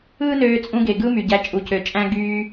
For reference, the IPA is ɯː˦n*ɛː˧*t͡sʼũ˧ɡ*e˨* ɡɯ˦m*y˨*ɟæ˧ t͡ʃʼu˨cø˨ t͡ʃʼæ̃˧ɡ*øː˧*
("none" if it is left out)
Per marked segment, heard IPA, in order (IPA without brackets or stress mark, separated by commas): øː˧, e˨, y˨, yː˧